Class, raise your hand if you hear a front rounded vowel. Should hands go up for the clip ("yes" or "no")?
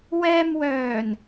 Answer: yes